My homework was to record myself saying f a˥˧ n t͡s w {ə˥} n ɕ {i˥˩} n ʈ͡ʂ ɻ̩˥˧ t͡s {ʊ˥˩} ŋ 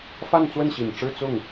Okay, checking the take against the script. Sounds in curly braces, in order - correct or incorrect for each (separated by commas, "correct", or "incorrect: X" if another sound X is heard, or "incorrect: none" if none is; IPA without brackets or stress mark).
incorrect: ə˥˩, incorrect: i˨˩, correct